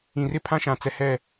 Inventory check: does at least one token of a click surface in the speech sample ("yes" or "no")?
no